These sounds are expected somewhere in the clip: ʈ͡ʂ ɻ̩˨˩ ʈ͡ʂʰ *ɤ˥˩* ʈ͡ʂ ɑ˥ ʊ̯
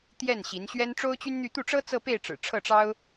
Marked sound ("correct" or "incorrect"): correct